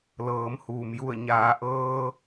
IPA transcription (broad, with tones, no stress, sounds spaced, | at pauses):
l ɤː˩˧ m h uː˩ m j u˧˩ ə̯ ɲ aː˩˧ ʔ ɤː˧